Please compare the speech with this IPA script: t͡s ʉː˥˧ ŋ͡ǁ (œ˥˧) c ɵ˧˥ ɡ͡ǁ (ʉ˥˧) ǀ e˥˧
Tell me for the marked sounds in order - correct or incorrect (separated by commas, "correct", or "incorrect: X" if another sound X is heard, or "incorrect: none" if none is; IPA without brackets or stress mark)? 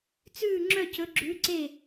correct, incorrect: ʉ˧˥